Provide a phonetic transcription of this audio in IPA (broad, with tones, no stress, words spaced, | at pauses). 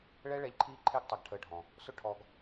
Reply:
ɭɛ˦ɭɛ˧ʎ ǃʰiː˦ǃʰe˦ɡ tˤa˧ɡʈʰəː˧ɖʱɔ̃˨ | sʊ˦ʈʰɔ˧ɡ